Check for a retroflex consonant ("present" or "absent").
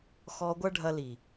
present